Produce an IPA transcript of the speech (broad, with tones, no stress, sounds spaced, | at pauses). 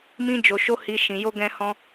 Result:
m ĩ˦ d͡ʒ o˧ ʃ o˦ h i˧ ʃ ĩ˧ j o˦ ɡ ɛ̃˦ h ɔ̃˦